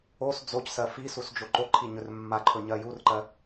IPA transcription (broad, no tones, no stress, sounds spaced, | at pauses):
o s d͡z o c s ɜ f i s u s d͡ʒ o ǃ o ǃʰ i ɲ ɵ r mː a ǃʰ ɵ ɲ ɜ j u r ǃ ɜ